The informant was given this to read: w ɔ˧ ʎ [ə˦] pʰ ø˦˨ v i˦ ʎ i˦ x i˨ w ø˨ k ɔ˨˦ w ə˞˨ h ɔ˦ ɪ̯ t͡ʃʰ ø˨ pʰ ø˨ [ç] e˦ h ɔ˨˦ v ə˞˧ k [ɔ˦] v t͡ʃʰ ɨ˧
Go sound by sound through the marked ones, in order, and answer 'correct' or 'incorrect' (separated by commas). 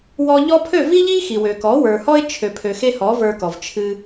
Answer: incorrect, incorrect, incorrect